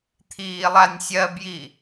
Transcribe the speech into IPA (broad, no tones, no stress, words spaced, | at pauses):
t̪ʰiːlˠanʲsʲɜbji